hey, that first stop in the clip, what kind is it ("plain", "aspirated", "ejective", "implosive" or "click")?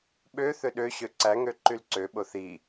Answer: implosive